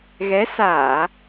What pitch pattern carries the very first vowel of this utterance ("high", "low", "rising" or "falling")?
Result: rising